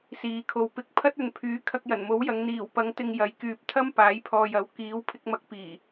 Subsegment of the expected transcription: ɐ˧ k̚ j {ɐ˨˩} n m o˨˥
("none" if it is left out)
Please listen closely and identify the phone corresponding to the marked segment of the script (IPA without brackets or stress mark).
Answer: ɐ˨˩